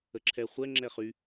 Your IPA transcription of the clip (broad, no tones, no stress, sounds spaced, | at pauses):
ə ǁʰ ɛ χʷ ɛ ŋ͡ǁ ɛ χ y